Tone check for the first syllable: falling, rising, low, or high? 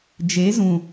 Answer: rising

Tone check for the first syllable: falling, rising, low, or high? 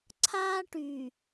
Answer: high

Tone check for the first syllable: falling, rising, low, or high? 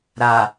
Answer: low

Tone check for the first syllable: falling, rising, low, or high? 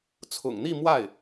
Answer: low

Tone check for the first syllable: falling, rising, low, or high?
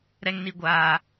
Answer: high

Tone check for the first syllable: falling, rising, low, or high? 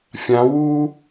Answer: rising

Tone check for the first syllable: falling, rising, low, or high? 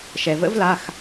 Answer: low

